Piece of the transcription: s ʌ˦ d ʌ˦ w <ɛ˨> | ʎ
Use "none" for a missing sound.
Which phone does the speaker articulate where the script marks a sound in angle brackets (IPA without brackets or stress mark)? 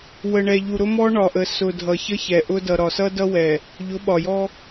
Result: ɛ˨